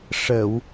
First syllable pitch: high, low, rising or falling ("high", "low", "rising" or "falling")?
low